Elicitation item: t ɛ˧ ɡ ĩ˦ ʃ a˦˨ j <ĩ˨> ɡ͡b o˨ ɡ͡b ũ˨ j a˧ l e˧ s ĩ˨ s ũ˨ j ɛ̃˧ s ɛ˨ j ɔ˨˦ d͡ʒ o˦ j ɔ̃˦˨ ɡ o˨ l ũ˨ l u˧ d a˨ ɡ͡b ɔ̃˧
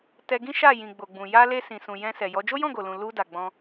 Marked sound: correct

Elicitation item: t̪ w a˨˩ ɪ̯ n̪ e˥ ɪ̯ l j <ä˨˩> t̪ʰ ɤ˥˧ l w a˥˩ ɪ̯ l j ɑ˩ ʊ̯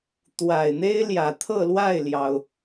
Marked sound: correct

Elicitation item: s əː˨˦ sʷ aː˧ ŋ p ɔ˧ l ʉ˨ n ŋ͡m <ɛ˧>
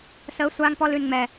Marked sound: incorrect: ɛ˨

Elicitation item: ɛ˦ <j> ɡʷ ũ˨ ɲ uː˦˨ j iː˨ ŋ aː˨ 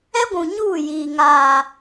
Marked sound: incorrect: none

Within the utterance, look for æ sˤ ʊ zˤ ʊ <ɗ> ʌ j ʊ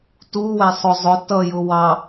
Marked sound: incorrect: t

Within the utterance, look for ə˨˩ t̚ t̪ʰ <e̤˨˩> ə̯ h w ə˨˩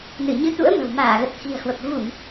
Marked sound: incorrect: i̤˨˩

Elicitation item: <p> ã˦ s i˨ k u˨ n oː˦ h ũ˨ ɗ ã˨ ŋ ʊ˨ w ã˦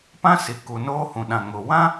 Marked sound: correct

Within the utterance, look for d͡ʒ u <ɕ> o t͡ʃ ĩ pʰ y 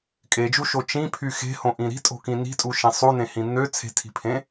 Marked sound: incorrect: ʃ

